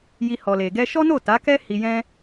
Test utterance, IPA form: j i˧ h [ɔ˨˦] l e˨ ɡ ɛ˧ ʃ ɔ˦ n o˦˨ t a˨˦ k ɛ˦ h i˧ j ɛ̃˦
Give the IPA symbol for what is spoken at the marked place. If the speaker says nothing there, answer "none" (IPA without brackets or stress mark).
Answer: ɔ˨